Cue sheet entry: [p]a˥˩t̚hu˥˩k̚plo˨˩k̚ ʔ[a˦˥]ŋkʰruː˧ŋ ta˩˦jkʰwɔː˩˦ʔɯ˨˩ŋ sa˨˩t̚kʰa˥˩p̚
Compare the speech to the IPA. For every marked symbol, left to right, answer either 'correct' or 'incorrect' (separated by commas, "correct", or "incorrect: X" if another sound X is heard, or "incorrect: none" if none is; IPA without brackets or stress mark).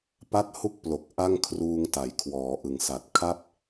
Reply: correct, incorrect: a˥˩